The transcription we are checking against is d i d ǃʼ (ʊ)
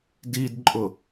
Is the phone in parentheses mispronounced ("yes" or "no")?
no